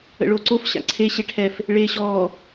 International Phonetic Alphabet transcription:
ə̰ɭoǀof ɕa̰ǀʰe ɕeʈʰɛf | ɭeːɕɔː

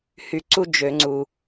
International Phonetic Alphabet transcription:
hy˨ǀu˦ d͡ʒø˨ŋ͡ǀu˨

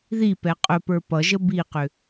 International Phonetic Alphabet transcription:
ðipɛ qʼɵpə˞ pʌʒə biqʏ

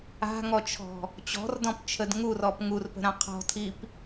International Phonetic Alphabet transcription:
a̤ŋɔt͡ʃʰɔ̤ | t͡ɕɔ̤rdɔ̃pt͡ʃʰəd ŋurɔp ŋurpə̤ɾã qʰɔ̤tʰip

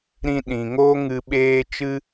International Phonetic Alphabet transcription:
ɾĩ˧ɗĩ˨ŋoː˦ ŋɨ˧ɓeː˦ t͡ʃɨ˦

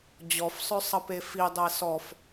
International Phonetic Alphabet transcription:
d͡ʑɔfsˤœ sˤʌpefidˤɛ sɔf

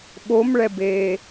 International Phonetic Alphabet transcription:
ɓomɭɛbeː

